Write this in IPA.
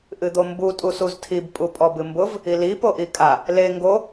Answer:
ʔɨd̪ombu tʼusuztʰib pʼupʼɔbɨmbʊv | ili poʔikʼa | le ŋɡo

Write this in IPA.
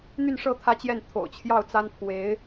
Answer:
n̪y˥˧nʂɤ˥˩ t̪ʰä˥t͡ɕjɛ˥˩nt̪ʰo̰˨˩ʊ̯ t͡ɕʰjɑ˥˩ʊ̯t͡sa˥n pʰwe˧˥ɪ̯

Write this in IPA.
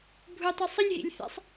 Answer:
bʱutˤe sˤəlʲɦḭlʲ θɛ̰sˤ

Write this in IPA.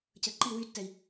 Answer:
cəǃi wytːɛi̯

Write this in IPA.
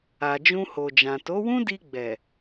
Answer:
a˨ d͡ʒũ˧ho˨d͡ʒã˨ to˨˦wũ˦di˧ɡ͡bɛ˨

